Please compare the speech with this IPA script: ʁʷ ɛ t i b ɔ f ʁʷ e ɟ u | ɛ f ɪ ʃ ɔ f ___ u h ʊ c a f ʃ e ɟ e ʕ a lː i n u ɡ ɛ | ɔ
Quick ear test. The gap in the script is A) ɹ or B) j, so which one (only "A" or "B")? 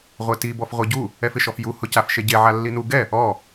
B